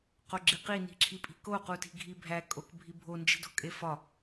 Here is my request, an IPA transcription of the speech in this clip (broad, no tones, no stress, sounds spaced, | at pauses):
q o ɡ͡ǁ i q i n i̤ ǁʰ i pʼ i̤ k o q u t i̤ ɡʱ i bʱ æ kʼ o k bʱ i bʱ o n d͡ʒ i̤ d o̤ kʼ e f ɒ